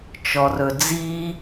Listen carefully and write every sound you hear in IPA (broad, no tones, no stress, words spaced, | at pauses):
t͡ʃɔrɵd͡zi